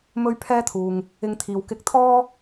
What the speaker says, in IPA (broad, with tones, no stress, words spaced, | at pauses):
mɵ˥ɥpʰɛː˥t̪ʰuː˨ŋ | ɪ˧ŋt̪ʰiː˨w kɪ˧k̚t̪ʰɔː˥